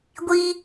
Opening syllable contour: high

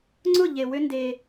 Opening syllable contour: falling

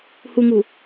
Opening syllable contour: low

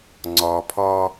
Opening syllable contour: low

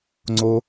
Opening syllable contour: high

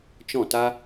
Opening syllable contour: falling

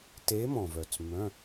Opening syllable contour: rising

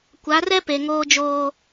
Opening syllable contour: rising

